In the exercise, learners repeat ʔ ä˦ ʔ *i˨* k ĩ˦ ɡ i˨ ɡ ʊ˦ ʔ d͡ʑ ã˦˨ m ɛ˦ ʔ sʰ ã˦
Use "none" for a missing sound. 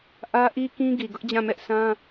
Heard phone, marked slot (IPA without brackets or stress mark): i˦